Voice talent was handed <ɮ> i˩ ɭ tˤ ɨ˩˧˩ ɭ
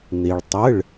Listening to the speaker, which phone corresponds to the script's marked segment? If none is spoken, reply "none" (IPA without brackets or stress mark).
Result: n̪